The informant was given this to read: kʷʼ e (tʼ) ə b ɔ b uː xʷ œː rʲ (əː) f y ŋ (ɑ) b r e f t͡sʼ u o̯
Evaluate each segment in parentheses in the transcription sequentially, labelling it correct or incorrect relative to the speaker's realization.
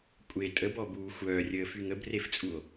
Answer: correct, correct, incorrect: ə

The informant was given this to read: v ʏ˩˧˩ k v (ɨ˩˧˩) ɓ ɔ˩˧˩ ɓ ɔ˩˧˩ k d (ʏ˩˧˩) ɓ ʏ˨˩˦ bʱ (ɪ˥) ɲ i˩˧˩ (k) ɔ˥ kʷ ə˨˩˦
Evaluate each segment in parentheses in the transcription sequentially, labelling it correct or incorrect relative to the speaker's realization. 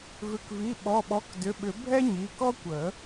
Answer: incorrect: i˩˧˩, correct, incorrect: ɛ˥, correct

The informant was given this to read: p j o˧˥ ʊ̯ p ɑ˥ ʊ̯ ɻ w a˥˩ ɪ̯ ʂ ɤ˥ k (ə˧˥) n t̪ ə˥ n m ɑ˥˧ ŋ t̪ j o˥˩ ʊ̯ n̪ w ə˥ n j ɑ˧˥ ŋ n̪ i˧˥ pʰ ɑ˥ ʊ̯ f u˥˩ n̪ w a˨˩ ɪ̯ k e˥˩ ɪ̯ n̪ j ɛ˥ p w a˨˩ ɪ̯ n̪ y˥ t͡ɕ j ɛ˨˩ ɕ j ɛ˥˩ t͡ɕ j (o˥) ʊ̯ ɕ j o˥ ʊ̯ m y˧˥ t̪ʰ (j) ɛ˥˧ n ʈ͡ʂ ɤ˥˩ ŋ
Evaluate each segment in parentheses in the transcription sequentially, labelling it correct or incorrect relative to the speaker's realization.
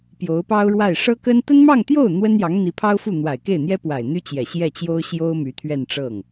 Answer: incorrect: ə˥, correct, incorrect: ɥ

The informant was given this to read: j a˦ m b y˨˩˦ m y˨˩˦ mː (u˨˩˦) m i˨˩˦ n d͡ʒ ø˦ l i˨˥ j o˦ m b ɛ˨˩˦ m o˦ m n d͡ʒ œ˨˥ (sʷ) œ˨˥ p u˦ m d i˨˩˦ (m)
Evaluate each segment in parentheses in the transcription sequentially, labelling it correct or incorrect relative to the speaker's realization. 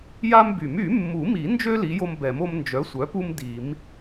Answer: correct, correct, correct

